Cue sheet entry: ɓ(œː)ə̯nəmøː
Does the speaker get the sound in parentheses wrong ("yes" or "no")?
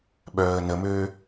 no